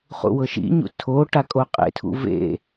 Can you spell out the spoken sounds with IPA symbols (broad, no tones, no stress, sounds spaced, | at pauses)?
χ ṵ w ɤ ʃ ḭ ɲ ṵ tʰ o ʈ a kʼ o qʼ ḛ tʰ ṵ v ḛ